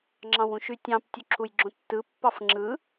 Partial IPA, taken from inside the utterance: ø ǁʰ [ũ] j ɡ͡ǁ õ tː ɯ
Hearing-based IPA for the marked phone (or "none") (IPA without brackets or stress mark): u